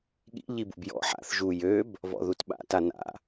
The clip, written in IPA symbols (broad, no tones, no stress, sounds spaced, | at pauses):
ɠ ḭ ʎ i b ṵ b j ɔ̰ ħ a̰ θ ʒ u j ø b | v ɔ̰ ð u t ɓ a̰ t a n a̰